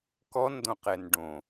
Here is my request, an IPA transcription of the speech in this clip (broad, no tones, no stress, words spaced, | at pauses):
kɔndõqɛn ɖõ